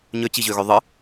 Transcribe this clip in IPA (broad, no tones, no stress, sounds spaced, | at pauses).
ɲ ø t͡ɕ i ʑ ø ɣ ø ðˤ ɯ